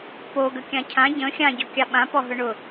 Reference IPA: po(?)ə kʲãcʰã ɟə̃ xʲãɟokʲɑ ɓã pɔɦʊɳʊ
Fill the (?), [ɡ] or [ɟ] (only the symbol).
ɡ